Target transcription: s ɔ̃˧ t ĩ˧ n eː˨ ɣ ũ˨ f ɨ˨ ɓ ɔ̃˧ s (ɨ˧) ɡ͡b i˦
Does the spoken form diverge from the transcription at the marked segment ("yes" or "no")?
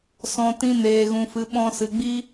yes